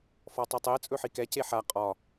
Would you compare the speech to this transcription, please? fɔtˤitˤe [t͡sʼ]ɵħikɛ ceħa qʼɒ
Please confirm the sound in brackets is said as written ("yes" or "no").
yes